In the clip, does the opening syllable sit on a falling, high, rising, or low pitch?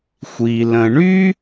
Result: low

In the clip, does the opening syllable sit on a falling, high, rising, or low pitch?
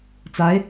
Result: rising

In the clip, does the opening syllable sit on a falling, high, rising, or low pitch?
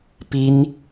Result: high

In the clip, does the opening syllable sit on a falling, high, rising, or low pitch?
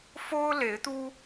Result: high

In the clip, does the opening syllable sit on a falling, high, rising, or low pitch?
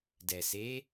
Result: low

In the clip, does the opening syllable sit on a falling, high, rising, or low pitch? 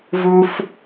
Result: high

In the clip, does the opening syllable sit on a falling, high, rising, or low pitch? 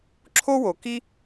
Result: high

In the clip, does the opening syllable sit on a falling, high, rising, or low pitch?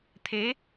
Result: rising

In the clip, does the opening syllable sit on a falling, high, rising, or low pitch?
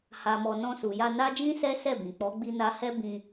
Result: low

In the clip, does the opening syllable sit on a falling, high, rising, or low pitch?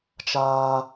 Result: high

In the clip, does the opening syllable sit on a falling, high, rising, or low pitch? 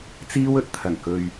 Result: high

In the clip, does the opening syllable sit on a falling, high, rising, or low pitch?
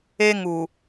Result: high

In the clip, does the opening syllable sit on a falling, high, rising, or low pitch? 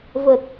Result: low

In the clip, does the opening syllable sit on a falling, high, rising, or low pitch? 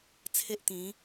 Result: high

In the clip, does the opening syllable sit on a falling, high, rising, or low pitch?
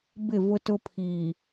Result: falling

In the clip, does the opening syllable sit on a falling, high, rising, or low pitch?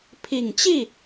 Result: low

